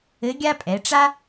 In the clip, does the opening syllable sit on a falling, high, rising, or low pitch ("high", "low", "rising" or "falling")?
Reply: rising